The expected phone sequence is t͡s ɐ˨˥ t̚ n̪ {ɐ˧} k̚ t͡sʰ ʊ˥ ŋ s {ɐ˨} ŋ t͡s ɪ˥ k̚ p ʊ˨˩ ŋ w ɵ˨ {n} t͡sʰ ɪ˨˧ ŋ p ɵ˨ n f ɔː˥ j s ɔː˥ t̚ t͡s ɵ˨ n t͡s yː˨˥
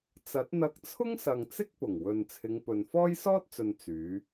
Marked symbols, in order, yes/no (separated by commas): yes, yes, yes